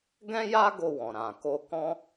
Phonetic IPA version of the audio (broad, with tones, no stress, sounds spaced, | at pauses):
ɡ ɛ̃˦ j a˦ ɡ o˧ w ɔ̃˨ ɾ ã˨ k o˧ k ɔ̃˦